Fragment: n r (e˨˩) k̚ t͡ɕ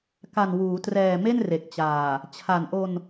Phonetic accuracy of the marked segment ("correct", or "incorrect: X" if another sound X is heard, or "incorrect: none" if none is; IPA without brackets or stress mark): correct